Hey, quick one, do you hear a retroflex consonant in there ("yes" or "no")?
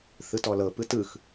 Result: no